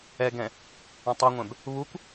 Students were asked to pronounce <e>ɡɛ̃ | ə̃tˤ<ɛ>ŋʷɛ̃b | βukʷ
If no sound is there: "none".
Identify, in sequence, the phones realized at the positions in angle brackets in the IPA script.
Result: ɛ, ɛ

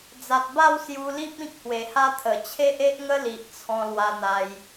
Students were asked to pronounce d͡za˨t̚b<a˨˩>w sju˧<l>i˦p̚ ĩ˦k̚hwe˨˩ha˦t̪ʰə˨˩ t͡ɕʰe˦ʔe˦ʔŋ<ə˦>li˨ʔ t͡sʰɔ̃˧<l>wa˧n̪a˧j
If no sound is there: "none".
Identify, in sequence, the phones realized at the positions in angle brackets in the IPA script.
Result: a˥˧, l, ə˦, l

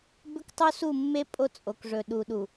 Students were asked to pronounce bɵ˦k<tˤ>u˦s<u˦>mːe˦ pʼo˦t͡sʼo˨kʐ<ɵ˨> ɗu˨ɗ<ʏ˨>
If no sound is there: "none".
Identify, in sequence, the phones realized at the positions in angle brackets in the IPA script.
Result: tˤ, u˦˨, ɵ˨, u˨

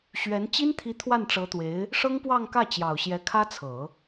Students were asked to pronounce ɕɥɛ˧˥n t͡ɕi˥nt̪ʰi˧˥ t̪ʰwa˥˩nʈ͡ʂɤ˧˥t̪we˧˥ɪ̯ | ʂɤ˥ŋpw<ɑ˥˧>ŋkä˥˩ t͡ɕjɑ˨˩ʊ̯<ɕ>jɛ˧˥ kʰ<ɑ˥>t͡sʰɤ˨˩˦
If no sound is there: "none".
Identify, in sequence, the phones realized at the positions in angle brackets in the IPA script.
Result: ɑ˥˧, ɕ, ä˥

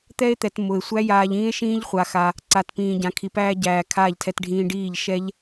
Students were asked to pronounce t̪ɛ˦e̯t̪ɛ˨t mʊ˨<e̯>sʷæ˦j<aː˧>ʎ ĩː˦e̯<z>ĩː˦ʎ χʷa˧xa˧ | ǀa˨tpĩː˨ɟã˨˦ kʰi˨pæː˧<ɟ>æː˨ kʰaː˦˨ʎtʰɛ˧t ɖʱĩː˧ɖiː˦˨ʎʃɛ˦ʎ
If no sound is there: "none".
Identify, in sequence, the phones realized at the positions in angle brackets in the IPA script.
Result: e̯, aː˧, ʃ, ɟ

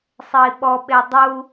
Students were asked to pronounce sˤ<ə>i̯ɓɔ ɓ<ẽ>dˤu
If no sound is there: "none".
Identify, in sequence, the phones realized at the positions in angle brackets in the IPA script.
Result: ə, e

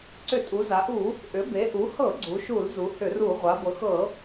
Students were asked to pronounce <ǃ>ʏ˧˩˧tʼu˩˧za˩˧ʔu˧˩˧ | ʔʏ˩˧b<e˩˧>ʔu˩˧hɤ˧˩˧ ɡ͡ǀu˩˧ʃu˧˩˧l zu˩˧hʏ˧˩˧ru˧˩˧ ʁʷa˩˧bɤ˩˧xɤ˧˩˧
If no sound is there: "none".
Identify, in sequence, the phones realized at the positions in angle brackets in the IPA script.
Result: ǀ, e˩˧

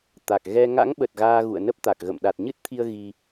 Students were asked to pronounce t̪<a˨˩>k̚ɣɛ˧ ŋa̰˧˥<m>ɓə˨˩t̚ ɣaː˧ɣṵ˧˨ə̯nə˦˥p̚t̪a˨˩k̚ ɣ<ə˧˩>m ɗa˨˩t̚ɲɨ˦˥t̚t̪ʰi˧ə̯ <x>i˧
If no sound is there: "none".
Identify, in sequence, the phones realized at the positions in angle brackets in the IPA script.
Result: a˨˩, ŋ, ə̰˧˨, ɣ

